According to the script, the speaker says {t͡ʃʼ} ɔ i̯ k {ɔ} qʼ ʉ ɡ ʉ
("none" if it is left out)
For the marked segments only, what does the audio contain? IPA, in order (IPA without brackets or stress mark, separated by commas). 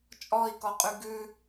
t͡ʃʼ, ɔ